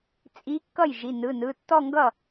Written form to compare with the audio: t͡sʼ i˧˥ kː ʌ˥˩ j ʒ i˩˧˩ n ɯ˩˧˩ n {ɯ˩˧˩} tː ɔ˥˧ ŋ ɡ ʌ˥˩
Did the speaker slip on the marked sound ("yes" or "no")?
no